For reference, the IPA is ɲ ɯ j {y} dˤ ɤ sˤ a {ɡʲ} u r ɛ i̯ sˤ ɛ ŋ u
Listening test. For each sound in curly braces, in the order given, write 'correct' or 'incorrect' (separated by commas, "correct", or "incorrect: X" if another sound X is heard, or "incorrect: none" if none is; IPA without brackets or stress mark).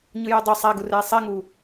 incorrect: u, incorrect: ɡ